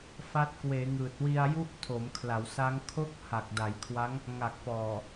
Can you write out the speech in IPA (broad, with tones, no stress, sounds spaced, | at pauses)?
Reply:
f a˦˥ t̚ k w eː˩˦ ŋ ɯː˨˩ t̚ w i˧ a̯ j u˦˥ ʔ tʰ o˩˦ m kʰ l a˩˦ w s a˦˥ ŋ kʰ o˦˥ k̚ h a˨˩ k̚ d a˩˦ j kʰ w a˦˥ ŋ | ŋ a˨˩ k̚ p ɔː˨˩